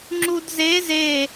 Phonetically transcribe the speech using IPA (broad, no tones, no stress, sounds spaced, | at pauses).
ŋ͡ǁ u d z e z e